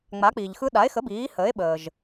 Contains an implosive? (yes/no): yes